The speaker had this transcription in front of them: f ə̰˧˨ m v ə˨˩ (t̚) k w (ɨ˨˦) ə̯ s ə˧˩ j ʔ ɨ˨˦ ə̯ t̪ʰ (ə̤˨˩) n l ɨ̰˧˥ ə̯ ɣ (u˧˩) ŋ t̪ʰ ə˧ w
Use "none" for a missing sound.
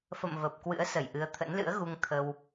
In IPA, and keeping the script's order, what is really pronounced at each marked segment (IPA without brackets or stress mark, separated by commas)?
p̚, ɨ̰˧˥, ə̰˧˥, u˧